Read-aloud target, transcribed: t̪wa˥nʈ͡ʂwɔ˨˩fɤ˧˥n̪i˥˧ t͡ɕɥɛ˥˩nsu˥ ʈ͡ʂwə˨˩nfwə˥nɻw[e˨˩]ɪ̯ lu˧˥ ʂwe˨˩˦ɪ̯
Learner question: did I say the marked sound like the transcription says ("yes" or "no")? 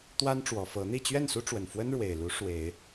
yes